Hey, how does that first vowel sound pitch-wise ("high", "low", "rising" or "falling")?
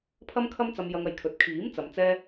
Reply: high